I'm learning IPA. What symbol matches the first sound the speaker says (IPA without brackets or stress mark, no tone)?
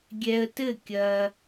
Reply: ɡʲ